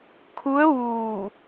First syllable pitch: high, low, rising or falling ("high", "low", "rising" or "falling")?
rising